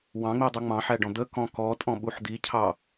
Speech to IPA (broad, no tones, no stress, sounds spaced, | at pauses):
w ɑ̃ ŋ͡m i dˤ u ŋ͡m ɑ̃ ħ æ ɖ ɔ̃ d̪ ə k ɔ̃ k ɔ tʼ ɔ̃ ɓ u ħ d̪ i cʰ ɑ